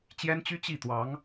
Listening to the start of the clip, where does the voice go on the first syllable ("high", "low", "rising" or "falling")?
high